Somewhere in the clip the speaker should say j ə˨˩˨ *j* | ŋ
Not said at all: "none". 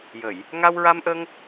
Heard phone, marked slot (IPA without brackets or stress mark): j